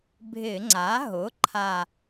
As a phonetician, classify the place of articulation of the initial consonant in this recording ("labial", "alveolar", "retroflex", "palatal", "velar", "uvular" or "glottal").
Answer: labial